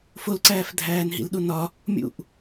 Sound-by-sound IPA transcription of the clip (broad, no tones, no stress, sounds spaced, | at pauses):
f o l ǀ æː f dʱ æː n ɦ ḭ l ɗ u n ɒ | mʲ ṵ ʔ